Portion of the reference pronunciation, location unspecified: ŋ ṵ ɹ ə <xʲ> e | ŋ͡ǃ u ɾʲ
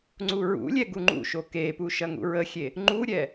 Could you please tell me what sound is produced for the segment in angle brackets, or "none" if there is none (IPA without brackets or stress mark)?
xʲ